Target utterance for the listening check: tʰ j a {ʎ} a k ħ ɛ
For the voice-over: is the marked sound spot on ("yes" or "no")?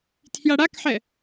no